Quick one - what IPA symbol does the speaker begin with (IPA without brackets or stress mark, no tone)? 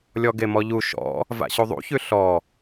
lʲ